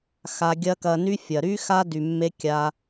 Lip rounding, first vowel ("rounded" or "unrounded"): unrounded